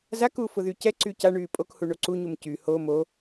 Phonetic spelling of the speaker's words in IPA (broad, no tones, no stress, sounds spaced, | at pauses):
z a k u f ʊ ð y c ɛ ǀ y c a ɳ yː pʼ o k h u ɳ o ǀ u ɲ u m c y h o m o